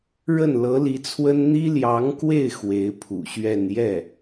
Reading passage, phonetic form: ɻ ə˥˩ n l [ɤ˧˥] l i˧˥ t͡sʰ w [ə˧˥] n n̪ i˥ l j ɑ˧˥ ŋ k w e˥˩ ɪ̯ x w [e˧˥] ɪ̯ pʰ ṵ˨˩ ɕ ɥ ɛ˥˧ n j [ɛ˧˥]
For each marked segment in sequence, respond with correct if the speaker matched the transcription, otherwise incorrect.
correct, incorrect: ə˥, correct, incorrect: ɛ˥˩

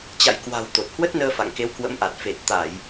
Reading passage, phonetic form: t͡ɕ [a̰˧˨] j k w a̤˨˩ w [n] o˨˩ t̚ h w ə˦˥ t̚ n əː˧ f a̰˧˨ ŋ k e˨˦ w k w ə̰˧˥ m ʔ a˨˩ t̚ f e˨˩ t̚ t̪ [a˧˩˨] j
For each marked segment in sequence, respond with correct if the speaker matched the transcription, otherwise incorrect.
correct, incorrect: t̪, correct

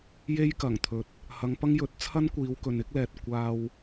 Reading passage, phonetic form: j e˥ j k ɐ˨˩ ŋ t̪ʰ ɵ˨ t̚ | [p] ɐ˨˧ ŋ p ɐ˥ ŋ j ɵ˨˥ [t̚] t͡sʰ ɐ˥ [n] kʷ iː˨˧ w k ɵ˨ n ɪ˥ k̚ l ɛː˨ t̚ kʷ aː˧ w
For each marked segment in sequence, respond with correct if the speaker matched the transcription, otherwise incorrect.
incorrect: h, correct, correct

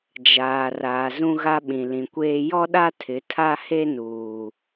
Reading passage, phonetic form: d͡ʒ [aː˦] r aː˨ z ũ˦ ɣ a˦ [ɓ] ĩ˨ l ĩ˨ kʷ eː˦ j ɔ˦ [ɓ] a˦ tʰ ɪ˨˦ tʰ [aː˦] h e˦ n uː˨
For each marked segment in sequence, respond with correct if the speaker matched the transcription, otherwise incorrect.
incorrect: aː˨, correct, incorrect: ɗ, incorrect: a˦

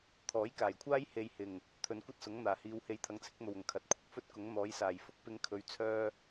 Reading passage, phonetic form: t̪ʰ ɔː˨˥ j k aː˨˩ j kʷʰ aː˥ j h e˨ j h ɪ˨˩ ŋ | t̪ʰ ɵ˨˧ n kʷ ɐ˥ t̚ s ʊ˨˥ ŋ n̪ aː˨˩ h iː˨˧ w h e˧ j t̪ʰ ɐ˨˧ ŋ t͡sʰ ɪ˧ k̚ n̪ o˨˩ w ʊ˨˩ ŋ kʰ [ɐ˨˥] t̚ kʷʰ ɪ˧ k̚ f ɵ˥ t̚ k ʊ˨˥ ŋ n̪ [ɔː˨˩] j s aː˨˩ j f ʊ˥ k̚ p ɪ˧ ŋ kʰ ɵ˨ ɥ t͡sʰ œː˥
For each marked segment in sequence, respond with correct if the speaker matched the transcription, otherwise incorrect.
correct, incorrect: ɔː˨˥

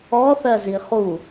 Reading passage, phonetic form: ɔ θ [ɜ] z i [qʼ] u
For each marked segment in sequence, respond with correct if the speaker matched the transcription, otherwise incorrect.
correct, incorrect: χ

